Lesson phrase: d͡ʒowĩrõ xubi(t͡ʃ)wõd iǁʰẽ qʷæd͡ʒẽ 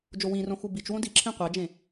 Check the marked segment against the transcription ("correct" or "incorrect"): correct